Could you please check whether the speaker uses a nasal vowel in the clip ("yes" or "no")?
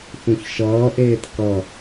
yes